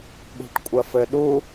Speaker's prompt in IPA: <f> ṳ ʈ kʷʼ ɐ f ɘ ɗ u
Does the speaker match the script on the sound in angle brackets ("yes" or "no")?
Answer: no